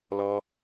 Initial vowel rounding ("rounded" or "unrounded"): rounded